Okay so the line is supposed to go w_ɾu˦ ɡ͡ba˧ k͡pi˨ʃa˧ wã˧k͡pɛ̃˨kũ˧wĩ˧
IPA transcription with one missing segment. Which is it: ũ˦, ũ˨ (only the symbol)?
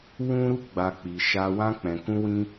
ũ˦